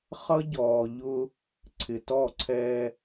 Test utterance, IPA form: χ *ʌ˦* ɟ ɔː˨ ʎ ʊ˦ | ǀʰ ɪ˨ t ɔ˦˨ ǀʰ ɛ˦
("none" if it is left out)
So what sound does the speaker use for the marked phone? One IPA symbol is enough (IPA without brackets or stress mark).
ʌ˦